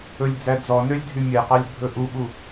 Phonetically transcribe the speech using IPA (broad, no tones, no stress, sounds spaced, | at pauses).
ɵ lʲ d͡z æ d͡z ɔ n ø lʲ dʱ y mʲ ɛ q ɑ lʲ bʱ ɵ ʔ u ɓ u